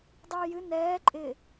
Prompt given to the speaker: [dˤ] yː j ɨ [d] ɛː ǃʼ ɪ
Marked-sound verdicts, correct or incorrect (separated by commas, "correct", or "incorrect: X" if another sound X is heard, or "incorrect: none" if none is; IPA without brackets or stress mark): correct, incorrect: n